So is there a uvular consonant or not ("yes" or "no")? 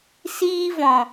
no